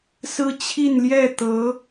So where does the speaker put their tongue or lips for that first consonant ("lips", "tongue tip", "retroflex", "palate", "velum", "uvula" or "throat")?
tongue tip